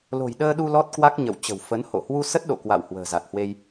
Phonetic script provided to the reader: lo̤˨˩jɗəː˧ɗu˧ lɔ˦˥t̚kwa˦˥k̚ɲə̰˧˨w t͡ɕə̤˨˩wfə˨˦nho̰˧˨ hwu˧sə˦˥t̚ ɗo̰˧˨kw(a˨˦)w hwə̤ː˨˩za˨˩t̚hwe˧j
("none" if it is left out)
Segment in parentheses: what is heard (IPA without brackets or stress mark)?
a̰˧˨